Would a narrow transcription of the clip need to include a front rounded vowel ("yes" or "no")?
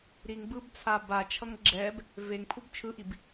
no